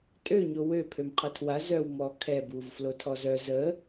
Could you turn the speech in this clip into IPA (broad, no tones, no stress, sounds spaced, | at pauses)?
tʼ ø ɲ o w ø pʰ ø m qʰ ə tʰ w a z œ w m ɔ kʰ ɛ b u v f l o tʰ ɔ z œ z ə